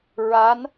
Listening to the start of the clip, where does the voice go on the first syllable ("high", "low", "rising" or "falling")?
rising